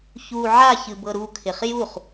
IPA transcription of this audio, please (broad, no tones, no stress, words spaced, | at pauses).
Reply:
çu ʕa çɨbɤɾukʰɪχ juχ